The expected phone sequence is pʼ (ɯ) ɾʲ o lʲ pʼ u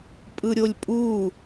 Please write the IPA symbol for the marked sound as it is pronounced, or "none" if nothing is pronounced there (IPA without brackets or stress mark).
ɯ